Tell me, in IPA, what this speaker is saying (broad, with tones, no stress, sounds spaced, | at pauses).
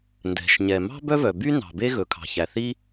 n d ɛ̤˩ ʃ ɲ ɛ˩ m ɑ̤˥ b œ˥ v œ˩ b y˥ n ɑ̤˩ b e˥ ɣ ɵ˩ kʰ ɑ̤˩ ç æ˩ θ i˥